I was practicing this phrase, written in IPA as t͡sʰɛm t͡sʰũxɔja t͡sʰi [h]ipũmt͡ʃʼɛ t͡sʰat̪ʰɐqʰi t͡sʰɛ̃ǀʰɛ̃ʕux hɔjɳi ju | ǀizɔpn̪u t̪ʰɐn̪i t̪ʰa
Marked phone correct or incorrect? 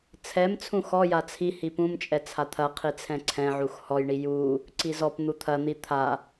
correct